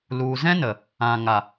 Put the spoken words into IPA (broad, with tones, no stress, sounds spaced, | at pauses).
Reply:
l u˨ z ɛ̃˦ n ə˨ | ã˨ ŋ a˨